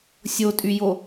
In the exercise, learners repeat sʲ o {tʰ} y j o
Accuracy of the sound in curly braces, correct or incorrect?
incorrect